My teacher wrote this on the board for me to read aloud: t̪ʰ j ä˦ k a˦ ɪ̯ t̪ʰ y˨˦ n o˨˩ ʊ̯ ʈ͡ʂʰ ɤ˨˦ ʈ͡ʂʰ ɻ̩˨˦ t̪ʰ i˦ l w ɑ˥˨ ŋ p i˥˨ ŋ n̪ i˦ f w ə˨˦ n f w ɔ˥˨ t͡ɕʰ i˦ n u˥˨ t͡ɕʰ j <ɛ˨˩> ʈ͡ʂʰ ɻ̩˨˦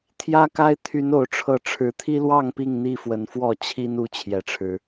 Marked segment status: correct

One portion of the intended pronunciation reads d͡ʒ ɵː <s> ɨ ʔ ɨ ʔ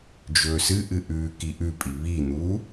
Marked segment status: correct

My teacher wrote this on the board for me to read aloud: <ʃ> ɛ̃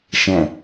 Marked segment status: correct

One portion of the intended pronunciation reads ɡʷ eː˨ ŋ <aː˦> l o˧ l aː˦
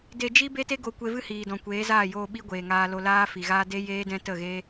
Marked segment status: incorrect: aː˧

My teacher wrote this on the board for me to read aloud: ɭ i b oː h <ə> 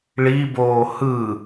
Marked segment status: incorrect: ɯ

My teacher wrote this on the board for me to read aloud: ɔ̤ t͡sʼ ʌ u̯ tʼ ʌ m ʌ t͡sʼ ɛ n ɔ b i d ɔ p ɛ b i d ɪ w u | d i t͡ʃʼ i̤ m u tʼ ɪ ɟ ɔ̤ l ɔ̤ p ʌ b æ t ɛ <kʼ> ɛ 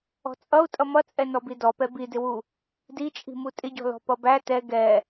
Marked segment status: incorrect: ɡ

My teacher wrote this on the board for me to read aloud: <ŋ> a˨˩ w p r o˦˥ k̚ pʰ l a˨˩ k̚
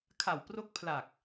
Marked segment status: incorrect: kʰ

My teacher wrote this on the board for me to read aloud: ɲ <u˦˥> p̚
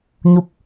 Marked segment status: correct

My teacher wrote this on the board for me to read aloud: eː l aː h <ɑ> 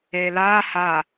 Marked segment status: incorrect: a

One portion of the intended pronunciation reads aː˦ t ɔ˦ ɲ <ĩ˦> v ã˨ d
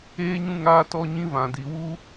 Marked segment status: correct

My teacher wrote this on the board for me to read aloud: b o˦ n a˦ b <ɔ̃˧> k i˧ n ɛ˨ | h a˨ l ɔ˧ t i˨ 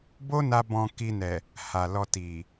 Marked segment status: correct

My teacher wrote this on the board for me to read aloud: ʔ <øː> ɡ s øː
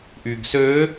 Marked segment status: incorrect: yː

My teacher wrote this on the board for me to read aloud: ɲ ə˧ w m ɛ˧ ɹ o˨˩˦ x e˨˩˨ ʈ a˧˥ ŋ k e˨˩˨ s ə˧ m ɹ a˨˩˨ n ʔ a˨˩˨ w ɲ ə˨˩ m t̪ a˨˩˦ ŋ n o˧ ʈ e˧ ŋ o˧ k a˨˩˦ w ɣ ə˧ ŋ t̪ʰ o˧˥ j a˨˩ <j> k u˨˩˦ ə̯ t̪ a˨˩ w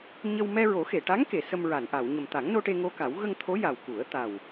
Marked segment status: incorrect: w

